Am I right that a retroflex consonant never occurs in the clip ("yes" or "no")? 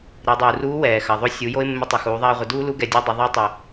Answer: yes